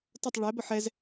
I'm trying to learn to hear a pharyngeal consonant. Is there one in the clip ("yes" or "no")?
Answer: yes